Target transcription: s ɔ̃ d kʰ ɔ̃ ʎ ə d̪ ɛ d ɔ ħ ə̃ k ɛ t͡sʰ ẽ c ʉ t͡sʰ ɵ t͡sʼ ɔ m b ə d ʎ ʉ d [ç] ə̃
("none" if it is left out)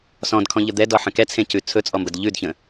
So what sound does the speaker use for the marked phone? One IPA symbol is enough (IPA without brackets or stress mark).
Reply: ç